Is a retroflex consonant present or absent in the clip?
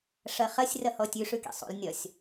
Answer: present